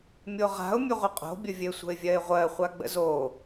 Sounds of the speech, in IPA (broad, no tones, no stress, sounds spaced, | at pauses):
mʲ o ʁ a̤ ʊ̯ mʲ ɵ ʁʷ ɘ qʼ o̤ bʲ ə vʲ ɘ sʷ ə̤ ɪ̯ vʲ ɜ ɪ̯ ʁʷ ɜ χʷ a ɡ͡b ə̰ z o